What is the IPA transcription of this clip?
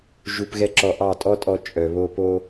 ʒ u˧ p ɣ ɛ˦ ǁ ɔ˧ ʔ ɑ˦˨ tʼ ɔ˦ tʼ ɔ˧ t͡ʃʼ œ˨ β o˧ p o˧

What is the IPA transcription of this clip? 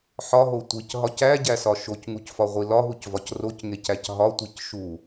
ħ ɒ ɦ o tʷ i c ɦ ɒ c æ ɟ æ s ɒ ʃ o c ŋ u c f ɒ ʁʷ i l ɒ ɦ u c v ɒ c r o c ŋ e c æ c ɦ ɒ tʷ i c ʃ u

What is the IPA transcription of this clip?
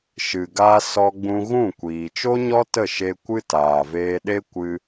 ʃ ɨ˨ ɡ a˧ s ɔ˧ ɡ͡b ũ˧ ɣ ũ˦˨ kʷ iː˨ t͡ʃ o˦ ɲ ɔ˦ t ə˦˨ ʃ e˧ kʷ ɨ˦ t aː˨ v eː˧ ɗ e˦ kʷ ɨ˧

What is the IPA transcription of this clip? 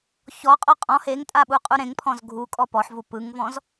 ç ɔ qʼ ɔ qʼ ɔ̃ h e ŋ tʼ a ɓ u qʼ u ɾ ẽ ŋ pʰ ɔ̃ z ɡʱ u kʼ ɔ p ɔ ħ v u p ɯ ŋ v ɔ̃ z

